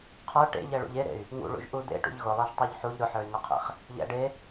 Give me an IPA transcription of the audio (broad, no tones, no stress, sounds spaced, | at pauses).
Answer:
qʰ ə˞ ʈ ḛ ʎ ɛ ɭ ṵ ʎ e ɾ ḛ y̯ | ŋ ṵ ɭ ṵ ʒ ʔ u d̪ ḛ ʈ ṵ ʎ ɣ ʊ lˠ ɛ ʒ tˤ u ʎ ħ u ʎ ɾ ʊ ħ ə˞ y̯ ŋ ʊ qʰ ḛ χ | ʎ ɛ̰ ɖ e